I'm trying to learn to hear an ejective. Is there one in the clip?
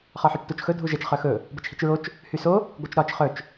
no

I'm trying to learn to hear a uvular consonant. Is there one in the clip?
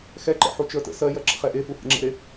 yes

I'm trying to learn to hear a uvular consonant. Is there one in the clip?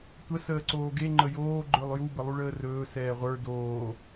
yes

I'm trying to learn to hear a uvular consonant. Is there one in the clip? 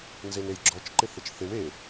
no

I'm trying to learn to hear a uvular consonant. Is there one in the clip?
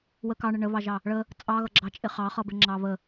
yes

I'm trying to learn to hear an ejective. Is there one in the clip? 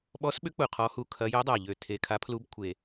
no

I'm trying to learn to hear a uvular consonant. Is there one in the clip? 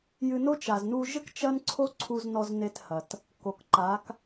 no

